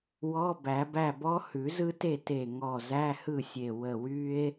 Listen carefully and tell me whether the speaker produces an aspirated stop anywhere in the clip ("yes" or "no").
no